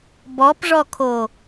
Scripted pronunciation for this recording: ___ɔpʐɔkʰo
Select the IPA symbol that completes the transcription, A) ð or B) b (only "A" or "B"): B